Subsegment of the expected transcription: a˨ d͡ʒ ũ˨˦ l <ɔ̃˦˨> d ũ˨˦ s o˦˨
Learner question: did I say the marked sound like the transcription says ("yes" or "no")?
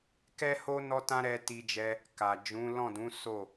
yes